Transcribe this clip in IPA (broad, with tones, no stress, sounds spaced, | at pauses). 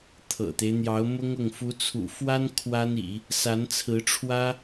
t̪ʰ ɤ̰˨˩ t̪ e˦ ɪ̯ n̪ j ɑ˧˥ ʊ̯ m ʊ˥ ŋ ʊ˥˩ ŋ f u˧˥ t͡sʰ ṵ˨˩ f w a˥ n kʰ w a˥ n ḭ˨˩˦ | s a˧˥ n t͡sʰ ɹ̩˧˥ ʈ͡ʂʰ w ä˥